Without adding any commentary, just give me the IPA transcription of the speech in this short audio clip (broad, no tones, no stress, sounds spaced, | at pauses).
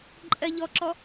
ǃʼ ɜ ʎ ɔ ǁ ɔ